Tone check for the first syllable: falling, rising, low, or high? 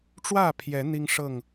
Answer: falling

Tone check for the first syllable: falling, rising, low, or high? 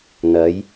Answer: rising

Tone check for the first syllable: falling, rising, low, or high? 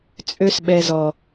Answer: high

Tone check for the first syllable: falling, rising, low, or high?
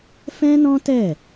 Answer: high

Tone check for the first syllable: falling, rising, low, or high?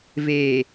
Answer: low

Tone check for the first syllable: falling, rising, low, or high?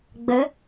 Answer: rising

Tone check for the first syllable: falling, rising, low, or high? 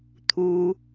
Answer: low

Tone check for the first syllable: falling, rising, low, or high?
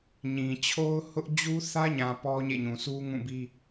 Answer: low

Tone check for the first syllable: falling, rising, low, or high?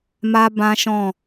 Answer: high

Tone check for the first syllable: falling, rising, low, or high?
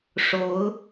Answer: rising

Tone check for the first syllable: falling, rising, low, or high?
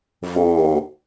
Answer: low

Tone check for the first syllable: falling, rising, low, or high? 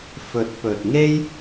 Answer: rising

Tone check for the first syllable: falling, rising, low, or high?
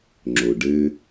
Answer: low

